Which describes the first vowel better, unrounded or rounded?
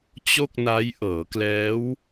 rounded